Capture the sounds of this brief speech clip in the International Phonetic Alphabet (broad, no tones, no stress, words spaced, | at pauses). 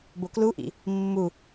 bokluʔḭ | mːu